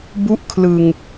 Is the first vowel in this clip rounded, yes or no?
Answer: yes